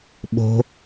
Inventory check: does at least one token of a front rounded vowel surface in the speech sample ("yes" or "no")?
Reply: no